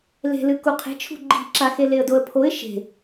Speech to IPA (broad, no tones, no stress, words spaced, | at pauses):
le̤lɨ kuqʰe̤t͡ʃʰṳ ɡ͡ǃi̤ǁaxe leə̯doə̯pʰoɪ̯ ʃe̤